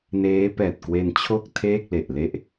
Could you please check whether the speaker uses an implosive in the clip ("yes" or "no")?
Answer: no